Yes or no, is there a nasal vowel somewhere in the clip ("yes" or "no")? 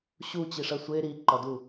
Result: no